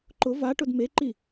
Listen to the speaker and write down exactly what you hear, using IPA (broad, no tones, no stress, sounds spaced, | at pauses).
ǃ ʊ v a ʈ ʊ d m e ǃ i